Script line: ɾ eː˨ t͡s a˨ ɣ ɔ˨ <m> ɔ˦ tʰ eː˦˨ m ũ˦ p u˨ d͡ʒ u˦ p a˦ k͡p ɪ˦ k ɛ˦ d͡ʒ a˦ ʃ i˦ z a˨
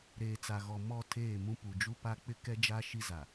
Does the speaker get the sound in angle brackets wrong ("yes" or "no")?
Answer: no